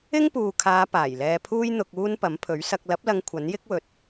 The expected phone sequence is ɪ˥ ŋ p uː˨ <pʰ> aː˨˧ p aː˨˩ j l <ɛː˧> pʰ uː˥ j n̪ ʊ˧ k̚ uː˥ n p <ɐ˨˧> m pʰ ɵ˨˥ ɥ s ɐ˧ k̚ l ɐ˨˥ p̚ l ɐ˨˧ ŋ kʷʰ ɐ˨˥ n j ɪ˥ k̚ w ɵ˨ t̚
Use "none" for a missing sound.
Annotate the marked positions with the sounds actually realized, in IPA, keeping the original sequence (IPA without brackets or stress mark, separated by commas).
kʰ, ɛː˧, ɐ˨˥